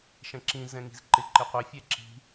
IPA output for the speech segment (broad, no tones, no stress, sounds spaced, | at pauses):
ʃ ɛ̃ ǁ ĩ z ɛ̃ ŋ i̤ z ǃ ɪ ǃ ɪ qʷ ɪ fʲ ɛ ǁ i̤